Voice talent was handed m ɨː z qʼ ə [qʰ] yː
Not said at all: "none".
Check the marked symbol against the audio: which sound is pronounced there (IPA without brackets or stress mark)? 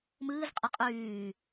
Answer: qʼ